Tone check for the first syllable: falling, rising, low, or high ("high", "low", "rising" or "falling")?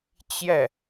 falling